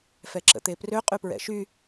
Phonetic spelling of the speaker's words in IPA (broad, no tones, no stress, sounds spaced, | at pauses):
f ɛ ǁ ə̰ t̪ e p r ø qʼ y p ɹ ɛ̰ ʃ y